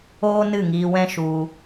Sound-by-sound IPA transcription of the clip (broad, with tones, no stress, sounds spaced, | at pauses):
oː˦ n ɨ˦˨ ŋ iː˧ w ɛ̃˦ ʃ u˧